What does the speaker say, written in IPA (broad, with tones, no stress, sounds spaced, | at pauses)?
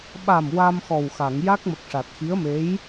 ɓ a˨˩ m w a˧ m x ɔ˨˩ w x a˨˩˨ ŋ j a˦˥ k̚ m ə˨˩ k̚ ʂ a˨˩ t̚ x i˧˥ ə̯ m e˧˥ j